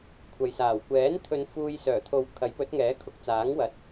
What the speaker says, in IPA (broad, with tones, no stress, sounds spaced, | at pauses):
kʷʰ ɐ˨ j s aː˨˩ w kʷ ɛː˨˥ n t̪ʰ ɵ˨˧ n f uː˧ j s œː˨˩ t̪ʰ o˨˧ w kʰ ɐ˨˥ j p ɵ˨˥ t̚ ŋ ɛː˨˥ kʰ ʊ˨˥ k̚ t͡s aː˨˥ ŋ w ɐ˨ t̚